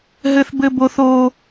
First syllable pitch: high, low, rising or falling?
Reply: high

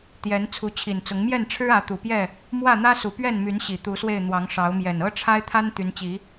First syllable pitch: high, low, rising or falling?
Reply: rising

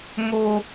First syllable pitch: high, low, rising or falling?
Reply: high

